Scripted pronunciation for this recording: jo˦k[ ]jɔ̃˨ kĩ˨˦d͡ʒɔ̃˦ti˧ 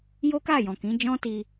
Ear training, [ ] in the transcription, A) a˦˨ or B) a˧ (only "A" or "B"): A